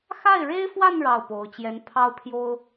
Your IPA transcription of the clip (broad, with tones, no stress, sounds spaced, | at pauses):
x a˥˩ ɪ̯ ɻ e˥ ɪ̯ f w a˥˧ n ɻ ɑ˥˩ ʊ̯ p o˧˥ ʊ̯ t͡ɕ j ɛ˧˥ n pʰ ɑ˥ ʊ̯ pʰ j o˥ ʊ̯